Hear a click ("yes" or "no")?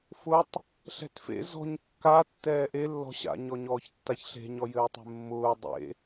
no